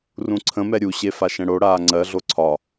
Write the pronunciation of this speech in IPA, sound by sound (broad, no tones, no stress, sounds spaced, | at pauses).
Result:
r ũ ǀʰ ə̃ m ɛ ɾʲ u ɕ e f a ʃ ɛ̃ ɽ o ɽ aː ŋ͡ǀ ɜ ɮ o ǀʰ ɒ